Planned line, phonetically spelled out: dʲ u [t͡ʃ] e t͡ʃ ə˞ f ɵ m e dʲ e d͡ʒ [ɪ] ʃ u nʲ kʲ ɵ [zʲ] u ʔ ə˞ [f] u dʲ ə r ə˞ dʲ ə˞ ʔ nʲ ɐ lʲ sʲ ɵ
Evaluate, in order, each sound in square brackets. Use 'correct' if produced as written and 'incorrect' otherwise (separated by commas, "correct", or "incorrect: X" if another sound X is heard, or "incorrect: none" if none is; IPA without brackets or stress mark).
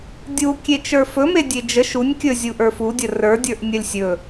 incorrect: kʲ, incorrect: ə, correct, correct